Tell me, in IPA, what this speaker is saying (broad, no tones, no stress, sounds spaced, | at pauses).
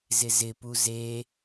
z ɪ z ɪ p u z e